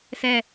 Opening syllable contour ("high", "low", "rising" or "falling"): falling